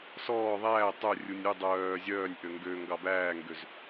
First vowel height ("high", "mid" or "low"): mid